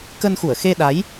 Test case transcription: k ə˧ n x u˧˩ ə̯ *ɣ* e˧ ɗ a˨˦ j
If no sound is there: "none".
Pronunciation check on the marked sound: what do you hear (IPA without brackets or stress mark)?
x